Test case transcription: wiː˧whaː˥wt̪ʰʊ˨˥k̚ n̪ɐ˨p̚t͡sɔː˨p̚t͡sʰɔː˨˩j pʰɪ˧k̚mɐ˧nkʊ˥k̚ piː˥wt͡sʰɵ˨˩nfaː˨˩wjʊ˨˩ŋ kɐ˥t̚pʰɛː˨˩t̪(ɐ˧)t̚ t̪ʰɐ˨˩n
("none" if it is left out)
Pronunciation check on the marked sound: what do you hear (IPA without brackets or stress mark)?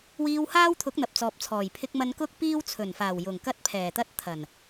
ɐ˥